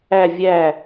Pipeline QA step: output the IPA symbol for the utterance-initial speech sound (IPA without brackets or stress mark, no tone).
æ